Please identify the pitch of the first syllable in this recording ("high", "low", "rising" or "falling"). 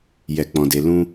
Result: low